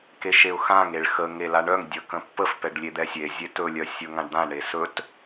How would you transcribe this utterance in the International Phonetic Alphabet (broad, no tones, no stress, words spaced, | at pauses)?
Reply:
keʃeʊ̯xãŋ eɭxə ŋelaɳœŋ dʲə kə̃pːəf pɛɖlʲed̪ɛsʲe zʲetɵ lʲœsʲɵŋãɖd̪ã ɳesɵt